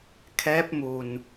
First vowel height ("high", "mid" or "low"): mid